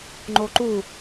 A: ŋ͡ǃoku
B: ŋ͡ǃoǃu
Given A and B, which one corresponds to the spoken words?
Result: B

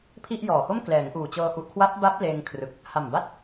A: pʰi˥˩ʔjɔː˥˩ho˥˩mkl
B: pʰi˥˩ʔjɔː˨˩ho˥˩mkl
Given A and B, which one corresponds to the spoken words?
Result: B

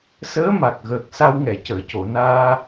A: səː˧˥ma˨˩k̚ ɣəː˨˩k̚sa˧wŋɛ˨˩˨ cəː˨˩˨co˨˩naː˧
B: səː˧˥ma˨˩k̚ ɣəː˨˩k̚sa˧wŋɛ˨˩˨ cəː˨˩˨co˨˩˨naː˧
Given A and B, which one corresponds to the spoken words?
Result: B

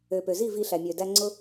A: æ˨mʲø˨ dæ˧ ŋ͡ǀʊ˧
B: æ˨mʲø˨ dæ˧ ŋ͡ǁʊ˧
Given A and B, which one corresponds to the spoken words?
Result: A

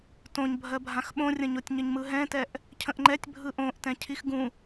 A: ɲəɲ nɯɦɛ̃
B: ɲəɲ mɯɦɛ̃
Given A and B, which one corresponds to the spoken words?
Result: B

